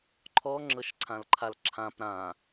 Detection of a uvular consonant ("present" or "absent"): absent